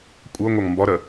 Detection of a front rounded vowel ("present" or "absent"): absent